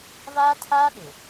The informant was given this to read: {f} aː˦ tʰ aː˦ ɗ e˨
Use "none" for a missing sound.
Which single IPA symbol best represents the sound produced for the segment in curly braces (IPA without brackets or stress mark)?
v